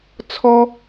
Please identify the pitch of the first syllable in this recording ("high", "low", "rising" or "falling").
high